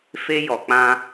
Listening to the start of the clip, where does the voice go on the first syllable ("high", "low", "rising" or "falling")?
high